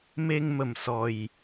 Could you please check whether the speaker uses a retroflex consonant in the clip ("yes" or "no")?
no